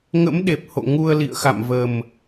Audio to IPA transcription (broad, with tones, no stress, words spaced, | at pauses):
ŋə̰˧˥mɗe˨˩p̚ho̰˧˨ ŋu˧ə̯lḭ˧˨ə̯xa̰˧˨mvə˨˩m